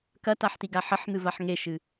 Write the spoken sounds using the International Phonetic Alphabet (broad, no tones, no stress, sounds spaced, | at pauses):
k ɐ t a ħ t i ɡ a ħ ɐ ħ n̪ ɨ v a ħ ŋ e ʃ ɨ